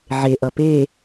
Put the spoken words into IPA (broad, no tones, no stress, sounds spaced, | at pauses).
ʕ e ʔ ʌ p e